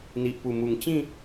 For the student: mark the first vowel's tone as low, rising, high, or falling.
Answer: low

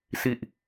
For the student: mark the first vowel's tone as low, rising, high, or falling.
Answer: low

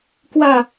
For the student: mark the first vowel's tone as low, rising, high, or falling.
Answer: falling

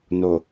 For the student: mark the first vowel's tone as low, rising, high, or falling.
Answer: low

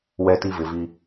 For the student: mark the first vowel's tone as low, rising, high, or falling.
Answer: high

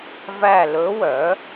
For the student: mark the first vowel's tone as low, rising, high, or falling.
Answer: falling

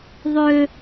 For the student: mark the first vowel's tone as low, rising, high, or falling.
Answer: low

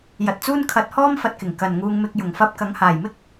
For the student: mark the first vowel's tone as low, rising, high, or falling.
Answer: low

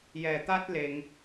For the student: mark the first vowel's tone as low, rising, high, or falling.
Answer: low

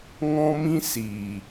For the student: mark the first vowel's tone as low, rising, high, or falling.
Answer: high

